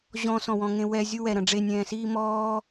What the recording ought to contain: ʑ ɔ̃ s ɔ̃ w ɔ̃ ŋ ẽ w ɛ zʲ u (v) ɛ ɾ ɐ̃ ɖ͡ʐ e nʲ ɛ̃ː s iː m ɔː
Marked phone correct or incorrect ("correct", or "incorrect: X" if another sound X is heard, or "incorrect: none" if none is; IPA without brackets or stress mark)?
incorrect: w